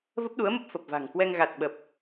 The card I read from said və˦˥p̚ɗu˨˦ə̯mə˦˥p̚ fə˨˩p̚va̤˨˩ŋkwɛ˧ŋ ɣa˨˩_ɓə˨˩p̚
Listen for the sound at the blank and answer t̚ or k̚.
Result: t̚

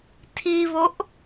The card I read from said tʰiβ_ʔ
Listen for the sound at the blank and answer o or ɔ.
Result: o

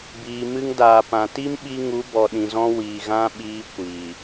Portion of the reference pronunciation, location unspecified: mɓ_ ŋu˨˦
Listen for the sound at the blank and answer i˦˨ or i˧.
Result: i˧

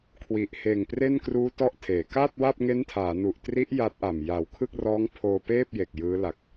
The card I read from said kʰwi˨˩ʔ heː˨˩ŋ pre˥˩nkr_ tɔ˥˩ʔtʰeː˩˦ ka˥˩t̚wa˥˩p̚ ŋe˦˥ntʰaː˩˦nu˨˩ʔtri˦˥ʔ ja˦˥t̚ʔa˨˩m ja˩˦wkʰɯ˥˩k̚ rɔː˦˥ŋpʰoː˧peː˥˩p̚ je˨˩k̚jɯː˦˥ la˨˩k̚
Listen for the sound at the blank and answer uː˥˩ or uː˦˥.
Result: uː˦˥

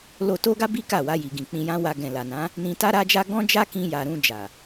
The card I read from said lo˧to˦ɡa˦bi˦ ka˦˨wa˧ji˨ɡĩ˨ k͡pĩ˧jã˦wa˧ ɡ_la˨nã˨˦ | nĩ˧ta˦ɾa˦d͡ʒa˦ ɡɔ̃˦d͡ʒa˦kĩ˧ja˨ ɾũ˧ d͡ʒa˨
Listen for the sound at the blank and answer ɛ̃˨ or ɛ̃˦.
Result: ɛ̃˨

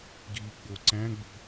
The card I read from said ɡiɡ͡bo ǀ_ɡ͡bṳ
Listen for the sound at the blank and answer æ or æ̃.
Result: æ̃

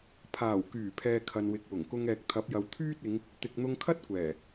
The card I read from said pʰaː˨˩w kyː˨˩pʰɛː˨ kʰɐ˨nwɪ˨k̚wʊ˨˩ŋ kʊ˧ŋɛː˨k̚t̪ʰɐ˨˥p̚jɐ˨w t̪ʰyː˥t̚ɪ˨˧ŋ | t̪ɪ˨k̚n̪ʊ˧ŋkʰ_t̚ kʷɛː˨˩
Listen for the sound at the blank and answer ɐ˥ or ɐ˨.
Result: ɐ˥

